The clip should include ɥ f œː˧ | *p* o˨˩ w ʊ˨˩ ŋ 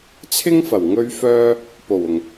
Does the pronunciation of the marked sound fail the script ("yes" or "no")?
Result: no